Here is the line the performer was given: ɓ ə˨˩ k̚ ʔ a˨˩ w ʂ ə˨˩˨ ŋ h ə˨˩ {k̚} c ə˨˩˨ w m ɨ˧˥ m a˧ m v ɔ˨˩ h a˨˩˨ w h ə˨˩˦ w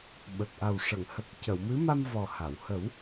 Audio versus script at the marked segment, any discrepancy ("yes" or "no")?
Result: no